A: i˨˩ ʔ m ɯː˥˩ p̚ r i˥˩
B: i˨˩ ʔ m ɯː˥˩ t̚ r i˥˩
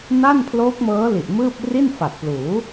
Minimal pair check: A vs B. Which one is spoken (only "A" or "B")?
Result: A